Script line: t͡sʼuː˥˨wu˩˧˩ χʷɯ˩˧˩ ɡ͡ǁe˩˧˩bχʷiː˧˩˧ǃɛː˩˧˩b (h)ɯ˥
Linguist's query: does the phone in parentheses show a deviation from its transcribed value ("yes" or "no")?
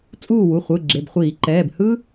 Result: no